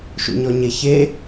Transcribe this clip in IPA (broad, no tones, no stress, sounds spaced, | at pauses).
ʃ ṵ ɲ ɔ ɲ e ç e